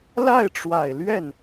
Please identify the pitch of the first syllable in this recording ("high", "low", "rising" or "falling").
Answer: falling